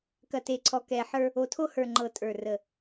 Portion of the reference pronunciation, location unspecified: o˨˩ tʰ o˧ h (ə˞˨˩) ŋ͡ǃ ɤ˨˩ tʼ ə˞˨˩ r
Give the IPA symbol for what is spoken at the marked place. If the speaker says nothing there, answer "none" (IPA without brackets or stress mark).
ə˞˨˩